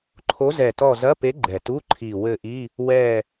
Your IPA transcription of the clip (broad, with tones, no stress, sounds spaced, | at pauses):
ǃʰ o˧˥ z ɛ˨˩ t ɔ˦˨ z ɐ˧˥˧ p e˧˥ ɡ͡ǃ ɛ˨˩ t u˧˥˧ ǃʰ i˨˩ w ɘ˦˨ ʔ i˧˥˧ | w ɛ˦˨